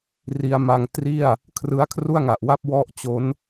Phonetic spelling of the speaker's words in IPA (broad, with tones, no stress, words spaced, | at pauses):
ri˧a̯ma˧ŋtri˥˩a̯ | kʰrɯ˦˥a̯kʰru˥˩a̯ŋa˨˩ʔwa˥˩p̚ wɔ˥˩ʔt͡ɕo˦˥n